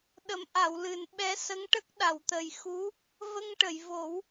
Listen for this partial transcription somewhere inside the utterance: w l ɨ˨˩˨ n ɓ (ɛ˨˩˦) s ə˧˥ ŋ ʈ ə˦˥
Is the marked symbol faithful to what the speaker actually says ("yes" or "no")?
no